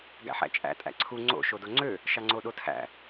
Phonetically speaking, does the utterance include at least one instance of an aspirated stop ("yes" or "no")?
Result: yes